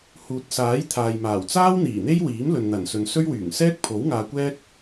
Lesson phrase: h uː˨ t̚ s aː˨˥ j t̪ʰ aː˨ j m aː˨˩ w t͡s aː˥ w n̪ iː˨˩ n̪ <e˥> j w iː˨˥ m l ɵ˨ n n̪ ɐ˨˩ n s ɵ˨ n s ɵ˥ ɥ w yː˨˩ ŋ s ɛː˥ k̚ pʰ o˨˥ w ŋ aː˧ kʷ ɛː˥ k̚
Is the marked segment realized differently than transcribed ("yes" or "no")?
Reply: no